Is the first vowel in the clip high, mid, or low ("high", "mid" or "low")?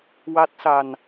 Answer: low